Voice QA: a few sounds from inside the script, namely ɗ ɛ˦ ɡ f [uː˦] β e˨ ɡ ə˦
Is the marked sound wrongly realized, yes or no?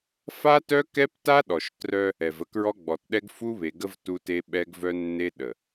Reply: yes